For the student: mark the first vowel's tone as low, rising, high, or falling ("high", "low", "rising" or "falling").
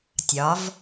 rising